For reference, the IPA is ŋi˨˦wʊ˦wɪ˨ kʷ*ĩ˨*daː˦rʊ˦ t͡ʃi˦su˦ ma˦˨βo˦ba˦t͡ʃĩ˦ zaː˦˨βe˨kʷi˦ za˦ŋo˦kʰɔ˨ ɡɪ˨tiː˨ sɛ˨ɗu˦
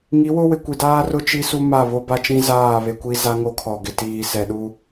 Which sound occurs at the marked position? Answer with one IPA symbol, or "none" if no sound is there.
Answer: i˨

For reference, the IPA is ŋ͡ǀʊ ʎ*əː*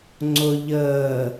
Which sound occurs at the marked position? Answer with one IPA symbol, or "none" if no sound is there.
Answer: əː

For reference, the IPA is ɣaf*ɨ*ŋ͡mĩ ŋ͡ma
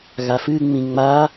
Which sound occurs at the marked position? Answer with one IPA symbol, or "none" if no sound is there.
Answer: ɨ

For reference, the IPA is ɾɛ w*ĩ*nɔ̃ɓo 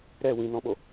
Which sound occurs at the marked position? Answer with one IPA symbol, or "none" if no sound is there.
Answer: ĩ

